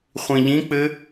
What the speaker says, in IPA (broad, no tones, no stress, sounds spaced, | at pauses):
χʷ ĩ ʎ ĩ k͡p ɘ